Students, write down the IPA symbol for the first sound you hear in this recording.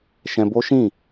ʃ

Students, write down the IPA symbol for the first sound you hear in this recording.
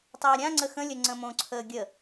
tˤ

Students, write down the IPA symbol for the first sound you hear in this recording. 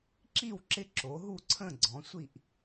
ǁ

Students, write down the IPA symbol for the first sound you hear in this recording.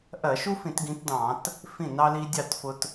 ʔ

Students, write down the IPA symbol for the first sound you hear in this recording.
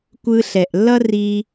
kʷ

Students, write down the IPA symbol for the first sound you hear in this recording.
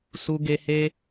s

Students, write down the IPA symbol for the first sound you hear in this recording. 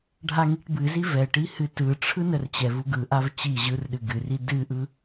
ɖʱ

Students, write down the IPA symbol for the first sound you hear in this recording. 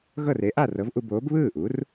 ɣ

